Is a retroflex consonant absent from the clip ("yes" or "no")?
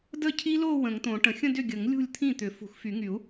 no